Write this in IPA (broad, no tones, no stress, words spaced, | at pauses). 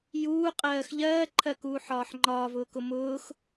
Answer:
juːqʼɜːx ʎɜːǃʰɜkuːħɒːħ ŋ͡ǃɒːvʊːkʊ mʊːx